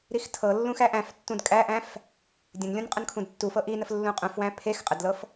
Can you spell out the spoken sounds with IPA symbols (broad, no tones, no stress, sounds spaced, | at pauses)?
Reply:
ɾ i x tʰ ɤ lː ũ x æ ʔ æ̃ f tː ũ d kʼ æ ʔ æ̃ f | dʲ ə̃ n lʲ ũ n qʼ ə n kʰ ũ d tː u f ɤ ʔ i n ə f lː ũ qʼ ũ f w æ̃ pʰ e x qʼ ə d l ɤ f